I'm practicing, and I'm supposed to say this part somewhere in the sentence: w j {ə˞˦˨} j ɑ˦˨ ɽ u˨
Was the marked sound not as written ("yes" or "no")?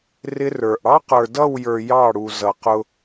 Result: yes